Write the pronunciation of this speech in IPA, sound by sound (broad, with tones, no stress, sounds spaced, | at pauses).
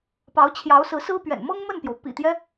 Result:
p ɑ˧˥ ʊ̯ t͡ɕʰ j ɑ˧˥ ʊ̯ s ɹ̩˧˥ s ɹ̩˥ p ɥ ɛ̰˨˩ n m ɤ˥ ŋ m ə˥˩ n p j o˩ ʊ̯ p ḭ˨˩ t̪ j ɛ˦